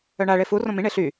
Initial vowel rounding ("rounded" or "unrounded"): rounded